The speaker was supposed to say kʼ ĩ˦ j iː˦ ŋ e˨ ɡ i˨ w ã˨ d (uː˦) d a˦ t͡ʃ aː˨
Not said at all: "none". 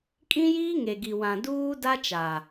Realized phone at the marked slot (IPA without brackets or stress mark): uː˦